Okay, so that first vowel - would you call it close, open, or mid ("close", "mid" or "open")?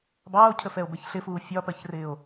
open